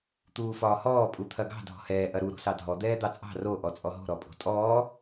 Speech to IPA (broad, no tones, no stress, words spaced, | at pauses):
t̪uːfɒːhɔː pʼut̪ʰɐɡɑ̤ dʱɔ̤hɛː ʔɐɾu ɾo̤sɑdʱɔ d̪ɛːd̪ɑt͡sʼɑ̤ ro ʔɔt͡sʼɔɦo̤ ɾɔpʼo̤tʼɔː